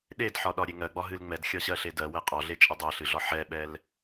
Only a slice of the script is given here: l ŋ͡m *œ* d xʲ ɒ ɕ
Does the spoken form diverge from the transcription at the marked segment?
yes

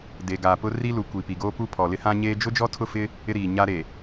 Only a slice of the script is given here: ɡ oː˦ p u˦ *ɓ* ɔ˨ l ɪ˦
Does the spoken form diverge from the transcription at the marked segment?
yes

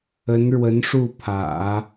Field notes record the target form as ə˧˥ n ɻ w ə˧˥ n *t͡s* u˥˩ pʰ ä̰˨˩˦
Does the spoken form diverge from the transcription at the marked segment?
yes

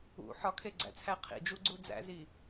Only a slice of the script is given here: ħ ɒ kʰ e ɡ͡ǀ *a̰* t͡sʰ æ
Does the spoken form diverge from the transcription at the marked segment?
yes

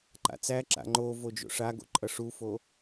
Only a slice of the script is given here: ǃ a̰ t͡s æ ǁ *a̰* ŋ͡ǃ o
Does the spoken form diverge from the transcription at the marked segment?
no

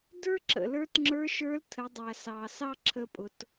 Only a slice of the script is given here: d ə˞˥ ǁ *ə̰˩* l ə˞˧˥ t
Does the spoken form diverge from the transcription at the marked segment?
no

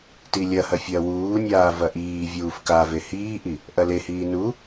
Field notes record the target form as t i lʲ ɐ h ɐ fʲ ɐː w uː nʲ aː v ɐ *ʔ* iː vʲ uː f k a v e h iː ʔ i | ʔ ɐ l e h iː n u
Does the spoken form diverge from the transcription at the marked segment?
no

